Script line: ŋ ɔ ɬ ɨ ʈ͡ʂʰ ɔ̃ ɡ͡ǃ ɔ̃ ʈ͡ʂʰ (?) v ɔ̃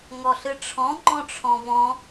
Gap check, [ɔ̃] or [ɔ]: ɔ̃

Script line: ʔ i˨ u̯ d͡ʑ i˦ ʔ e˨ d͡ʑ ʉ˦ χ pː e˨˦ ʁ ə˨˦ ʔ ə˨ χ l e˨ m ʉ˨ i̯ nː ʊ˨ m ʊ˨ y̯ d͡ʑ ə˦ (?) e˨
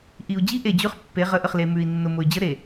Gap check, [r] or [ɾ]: ɾ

